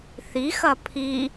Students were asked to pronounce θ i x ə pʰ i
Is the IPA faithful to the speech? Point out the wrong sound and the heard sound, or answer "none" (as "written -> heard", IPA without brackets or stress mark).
ə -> ɐ